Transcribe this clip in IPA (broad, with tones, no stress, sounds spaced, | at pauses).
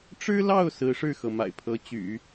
ʈ͡ʂ ɻ̩˥ l ɑ˥˩ ʊ̯ s ɹ̩˧˥ ʂ ɻ̩˥˩ x ɤ˩ m a̰˨˩ ɪ̯ pʰ ɤ˧˥ t͡ɕ y̰˨˩˦